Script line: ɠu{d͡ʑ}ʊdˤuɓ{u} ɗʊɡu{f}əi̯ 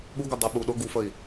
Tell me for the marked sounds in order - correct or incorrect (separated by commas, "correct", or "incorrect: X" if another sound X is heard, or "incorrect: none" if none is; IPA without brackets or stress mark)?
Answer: incorrect: ɡ, correct, correct